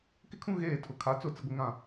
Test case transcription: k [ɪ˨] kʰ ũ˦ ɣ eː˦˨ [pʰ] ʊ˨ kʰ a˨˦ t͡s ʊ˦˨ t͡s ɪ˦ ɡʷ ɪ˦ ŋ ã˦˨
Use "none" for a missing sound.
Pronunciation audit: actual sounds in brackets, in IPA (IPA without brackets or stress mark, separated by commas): ɪ˦, tʰ